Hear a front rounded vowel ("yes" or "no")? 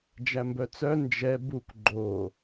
yes